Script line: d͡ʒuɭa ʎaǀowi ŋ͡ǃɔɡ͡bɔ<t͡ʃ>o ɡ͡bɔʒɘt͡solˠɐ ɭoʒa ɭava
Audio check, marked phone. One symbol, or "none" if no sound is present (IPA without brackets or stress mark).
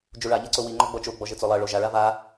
t͡ʃ